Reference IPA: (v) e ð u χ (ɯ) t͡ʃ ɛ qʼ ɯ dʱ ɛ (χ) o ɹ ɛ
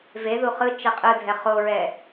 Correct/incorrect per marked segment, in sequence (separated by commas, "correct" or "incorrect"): correct, correct, correct